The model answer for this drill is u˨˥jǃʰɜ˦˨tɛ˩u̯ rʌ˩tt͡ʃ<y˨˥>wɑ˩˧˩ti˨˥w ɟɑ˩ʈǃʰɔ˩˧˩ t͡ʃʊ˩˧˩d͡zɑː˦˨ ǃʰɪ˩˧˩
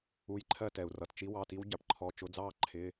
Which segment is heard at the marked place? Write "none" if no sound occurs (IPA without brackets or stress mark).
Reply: i˨˥